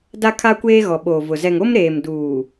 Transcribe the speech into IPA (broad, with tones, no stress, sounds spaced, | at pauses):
d a˦ kʰ a˦ kʷ eː˦ ɣ ɔ˨ ɓ oː˨ v ʊ˨ z ɛ˨ ŋ o˦ m ɾ eː˨ m d uː˨